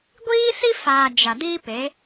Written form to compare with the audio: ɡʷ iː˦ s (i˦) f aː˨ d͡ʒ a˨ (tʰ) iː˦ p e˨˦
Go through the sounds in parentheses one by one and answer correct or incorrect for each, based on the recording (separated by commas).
correct, incorrect